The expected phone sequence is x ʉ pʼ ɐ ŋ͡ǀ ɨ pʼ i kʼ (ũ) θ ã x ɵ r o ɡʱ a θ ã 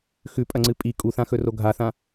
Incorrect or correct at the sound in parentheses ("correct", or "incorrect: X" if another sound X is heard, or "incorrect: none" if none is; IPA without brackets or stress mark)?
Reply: incorrect: u